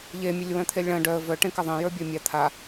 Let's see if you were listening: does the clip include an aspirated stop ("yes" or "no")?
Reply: yes